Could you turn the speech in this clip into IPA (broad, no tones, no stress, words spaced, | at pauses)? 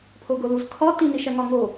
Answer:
pʰoɡoluz kʰɒ tiniʃæ ŋɒŋo